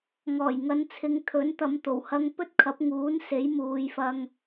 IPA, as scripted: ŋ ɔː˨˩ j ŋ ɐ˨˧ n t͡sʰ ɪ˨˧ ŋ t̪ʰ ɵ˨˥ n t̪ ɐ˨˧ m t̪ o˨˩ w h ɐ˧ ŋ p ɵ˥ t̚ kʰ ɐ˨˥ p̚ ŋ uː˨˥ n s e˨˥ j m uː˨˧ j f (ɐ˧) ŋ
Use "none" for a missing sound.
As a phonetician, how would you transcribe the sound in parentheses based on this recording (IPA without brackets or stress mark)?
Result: ɐ˧